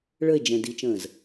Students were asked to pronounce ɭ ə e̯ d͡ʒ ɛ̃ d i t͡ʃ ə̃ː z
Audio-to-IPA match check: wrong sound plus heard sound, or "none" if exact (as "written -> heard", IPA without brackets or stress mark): none